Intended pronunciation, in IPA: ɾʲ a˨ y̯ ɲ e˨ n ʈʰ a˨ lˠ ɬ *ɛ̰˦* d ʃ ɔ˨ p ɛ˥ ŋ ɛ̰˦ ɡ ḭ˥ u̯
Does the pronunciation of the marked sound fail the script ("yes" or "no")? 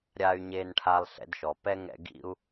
no